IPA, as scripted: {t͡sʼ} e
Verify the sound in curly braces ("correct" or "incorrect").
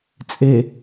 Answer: correct